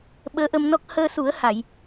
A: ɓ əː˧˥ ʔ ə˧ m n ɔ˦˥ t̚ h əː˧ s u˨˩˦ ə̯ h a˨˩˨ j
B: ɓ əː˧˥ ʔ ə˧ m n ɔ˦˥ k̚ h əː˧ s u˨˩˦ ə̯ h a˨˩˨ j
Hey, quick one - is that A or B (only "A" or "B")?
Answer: B